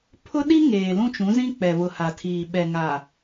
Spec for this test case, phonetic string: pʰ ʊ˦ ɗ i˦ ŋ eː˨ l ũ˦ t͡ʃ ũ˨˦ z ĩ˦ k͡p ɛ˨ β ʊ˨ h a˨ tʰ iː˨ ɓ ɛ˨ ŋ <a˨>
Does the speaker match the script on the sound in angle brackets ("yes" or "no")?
yes